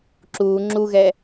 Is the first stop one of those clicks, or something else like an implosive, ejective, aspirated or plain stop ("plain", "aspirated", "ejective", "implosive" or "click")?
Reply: click